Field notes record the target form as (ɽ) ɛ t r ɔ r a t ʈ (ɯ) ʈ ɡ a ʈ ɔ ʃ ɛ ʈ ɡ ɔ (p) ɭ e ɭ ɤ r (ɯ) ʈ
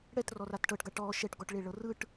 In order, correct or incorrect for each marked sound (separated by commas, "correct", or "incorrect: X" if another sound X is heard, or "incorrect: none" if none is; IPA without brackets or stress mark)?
correct, incorrect: ɤ, incorrect: ʈ, correct